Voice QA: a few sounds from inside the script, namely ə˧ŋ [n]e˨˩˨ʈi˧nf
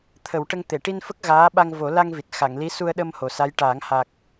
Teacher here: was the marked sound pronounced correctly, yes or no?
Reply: no